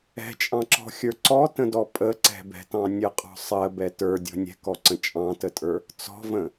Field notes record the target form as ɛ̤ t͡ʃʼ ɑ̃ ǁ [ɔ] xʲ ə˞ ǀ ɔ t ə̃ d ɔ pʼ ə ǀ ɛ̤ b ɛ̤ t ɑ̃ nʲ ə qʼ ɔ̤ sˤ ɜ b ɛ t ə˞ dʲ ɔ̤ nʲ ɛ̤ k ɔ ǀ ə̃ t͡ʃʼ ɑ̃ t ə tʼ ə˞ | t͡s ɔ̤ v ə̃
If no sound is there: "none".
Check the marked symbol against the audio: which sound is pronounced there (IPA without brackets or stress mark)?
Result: ɔ̤